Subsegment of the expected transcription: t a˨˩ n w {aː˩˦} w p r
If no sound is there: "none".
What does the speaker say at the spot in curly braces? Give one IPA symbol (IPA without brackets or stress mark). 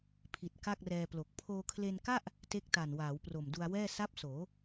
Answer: aː˩˦